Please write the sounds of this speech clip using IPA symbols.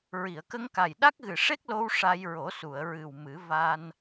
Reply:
ɹi˨˩˨ə̯kə˧ŋka˨˩j ɗa˦˥k̚ɣɨ˨˩ʂe˦˥k̚lo˧w ʂa˧jɹo˨˩˦ su˨˩˨ə̯ɹɨ˨˩wmɨ˨˩˦ va˧n

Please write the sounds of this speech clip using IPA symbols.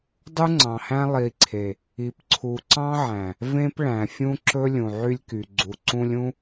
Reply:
dˤu˦ŋ͡ǀɑ̃˨hæ̃˦ lˠi˨ǀʰe˨ | i˨pǀʰu˨ǀɑ̃˦ʕæ̃˨ | vẽ˦p ɭæ̃˨ fʲũ˦ǁɵ˦ lʲũ˨ʕy˦lʲky˨ ɡ͡ǀu˨ǀũ˦lʲũ˦

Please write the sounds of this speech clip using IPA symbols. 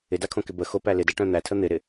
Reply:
ɪdakʰõkɪ bə xopæ lɪdæʈœ̃ n̪ætʰə n̪ɪɾɪ

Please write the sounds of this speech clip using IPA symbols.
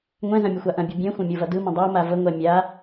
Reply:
ŋʷɛ̃zɐ̃ mʲəxʷaʔɐ̃bʲɯ bʲɛ̃xʷɐ̃ mʲovɐdɯmɐ̃ dˤoma vəŋʷɛ mʲa

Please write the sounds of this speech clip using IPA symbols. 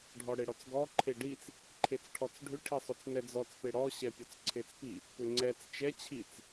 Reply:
ɖʱɔɽeɽɔt͡sɡɔ ǃʰeɖit͡s | ǃʰet͡sʈʰɔt͡sɖʱʏ ʈʰisˤʏt͡snɛd͡zɔt͡s peɽɔ ɕɛpʲɔt͡sǀʰet͡spi | pʏŋ͡ǀɛt͡s t͡ʃɛ t͡ɕʰit͡s

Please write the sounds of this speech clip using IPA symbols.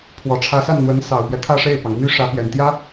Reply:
pʰwɔ˨˩ʈ͡ʂʰä˧˥sa˥˩nn̪wə˧˥n sɑ˨˩ʊ̯pjɛ˦ t̪ʰä˥˧ʂe˥˩ɪ̯pɑ˩ŋ my˥ ʂä˧˥pjɛ˨˩nt̪jä˥

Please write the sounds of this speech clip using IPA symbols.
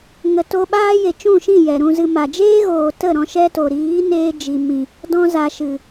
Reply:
ŋə˨to˧ɓaː˦je˨ t͡ʃũ˦˨ʃĩ˦˨ jɛ˨ɾũ˧zɨ˧ ma˨ d͡ʒeː˦ɣoː˨ tə˦˨ ɾɔ̃˧ʃɛ˦to˨ ɾiː˨˦neː˧d͡ʒi˨mĩ˨ | dɔ̃˧ za˨ʃɨ˨

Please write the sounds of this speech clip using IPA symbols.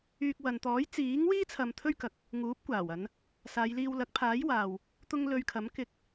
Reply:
yː˧k̚wɐ˨n t̪ɔː˨˥j t͡siː˨˥ŋwiː˥ t͡sʰɐ˧mt̪ʰɵ˥ɥkɐ˨k̚ | ŋuː˨˥p̚kʷaː˨˩w ɐ˨˧n | saː˨˧jliː˧w lɐ˨˥k̚pʰaː˨˥j waː˨w | t̪ʊ˧ŋ lɵ˧ɥkʰɐ˨˥mkɪ˧k̚

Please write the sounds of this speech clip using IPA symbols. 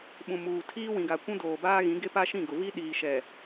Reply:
ɓũ˨muː˨ tʰiː˦wĩ˨ɡa˨ kʷũ˦doː˨baː˦ɣĩ˨˦ ɡe˦pa˦ʃĩ˦˨ɡʊ˨ vi˦ɗiː˨ʃɛ˨

